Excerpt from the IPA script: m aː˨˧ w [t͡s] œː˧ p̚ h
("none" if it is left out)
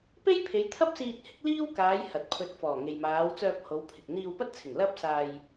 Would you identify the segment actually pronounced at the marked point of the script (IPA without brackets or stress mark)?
t͡s